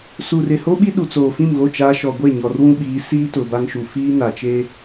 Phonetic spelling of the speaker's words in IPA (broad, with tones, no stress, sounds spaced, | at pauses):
s u˨ r ɪ˨ h o˦ ɓ i˦ ɗ u˨ t͡s oː˨ f ĩ˦˨ m ɣ o˦˨ t͡ʃ aː˦ ʃ ɔ˨ ɡʷ e˦˨ ɲ ɔ˨ r w ũ˦ ɓ iː˨˦ s iː˦ t ʊ˨ b a˦ ŋ ʃ u˨ f iː˦ n a˨ t͡ʃ e˦